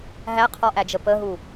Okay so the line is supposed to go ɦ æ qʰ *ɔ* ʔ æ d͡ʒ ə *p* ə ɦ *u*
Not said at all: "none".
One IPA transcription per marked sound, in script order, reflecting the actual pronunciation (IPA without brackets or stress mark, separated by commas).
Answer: ɔ, p, u